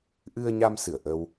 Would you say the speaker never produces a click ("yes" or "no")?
yes